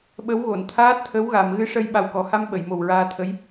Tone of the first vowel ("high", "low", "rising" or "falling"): rising